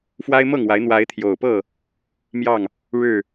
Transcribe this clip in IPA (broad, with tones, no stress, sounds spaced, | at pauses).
f w a˦ ɪ̯ m ɤ˥˨ ŋ w a˨˦ ɪ̯ n̪ w a˨˦ ɪ̯ t̪ʰ j o˨˩ ʊ̯ p ɤ˥˨ | m j ɑ˥˨ ŋ | ɻ ɻ̩˥˨